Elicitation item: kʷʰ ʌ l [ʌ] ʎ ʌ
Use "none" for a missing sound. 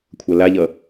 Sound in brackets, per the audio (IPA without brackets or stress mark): a